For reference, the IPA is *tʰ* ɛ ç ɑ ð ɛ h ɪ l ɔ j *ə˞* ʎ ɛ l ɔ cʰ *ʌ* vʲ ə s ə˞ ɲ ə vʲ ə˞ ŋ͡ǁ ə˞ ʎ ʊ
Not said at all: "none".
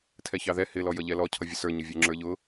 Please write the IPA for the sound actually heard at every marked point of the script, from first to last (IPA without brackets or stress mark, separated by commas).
tʰ, ʌ, ʌ